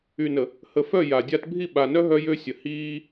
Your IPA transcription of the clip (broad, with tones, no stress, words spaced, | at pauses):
y˨nə˨ | hə˨fœ˦˨ ja˨dʲa˦t bʱi˦˨ɓa˨nœ˦ ɦœ˦jø˦ sʲə˨ hiː˦